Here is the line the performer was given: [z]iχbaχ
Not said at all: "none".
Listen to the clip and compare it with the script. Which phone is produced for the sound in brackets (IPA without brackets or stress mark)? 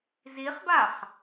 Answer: z